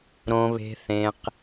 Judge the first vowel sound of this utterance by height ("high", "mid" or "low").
mid